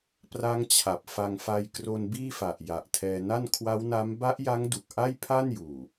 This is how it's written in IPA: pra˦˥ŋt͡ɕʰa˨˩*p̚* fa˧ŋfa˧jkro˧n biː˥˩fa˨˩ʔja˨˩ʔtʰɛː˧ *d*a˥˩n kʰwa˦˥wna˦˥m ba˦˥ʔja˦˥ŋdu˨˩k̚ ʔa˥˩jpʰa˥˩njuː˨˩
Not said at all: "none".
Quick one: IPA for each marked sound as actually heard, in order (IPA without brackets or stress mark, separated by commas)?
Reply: p̚, n